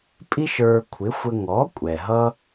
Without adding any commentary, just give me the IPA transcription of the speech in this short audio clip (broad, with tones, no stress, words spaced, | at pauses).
pʼi˥ʃə˞˧ kʷʰɪ˩˥xʷə˧ ŋɔ˩˥ kʷʼɛ˩ɦʌ˥